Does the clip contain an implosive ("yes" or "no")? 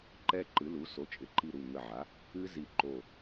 no